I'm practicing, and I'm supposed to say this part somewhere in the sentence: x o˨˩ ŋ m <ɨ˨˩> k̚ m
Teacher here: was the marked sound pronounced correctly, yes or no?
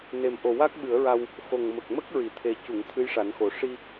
no